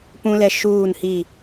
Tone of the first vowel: high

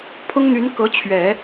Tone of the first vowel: high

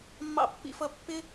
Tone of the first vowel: low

